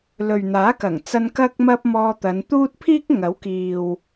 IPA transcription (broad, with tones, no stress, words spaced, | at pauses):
lɵ˨ɥn̪aː˨˥kɐ˨˩ŋt͡sɐ˧n kɐ˥k̚mɐ˥p̚ mɔː˧t̪ɐ˨˧nt̪uː˥t̚ pʰiː˥k̚ŋɐ˨˥w kiː˨w